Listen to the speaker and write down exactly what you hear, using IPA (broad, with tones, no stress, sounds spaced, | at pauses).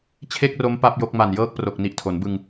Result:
t͡ɕʰ e˥˩ k̚ r o˦˥ m p a˥˩ p̚ j o˦˥ k̚ m a˨˩ n j ɤː˦˥ k̚ p r o˨˩ k̚ n i˨˩ ʔ tʰ o˩˦ n b ɯ˧ ŋ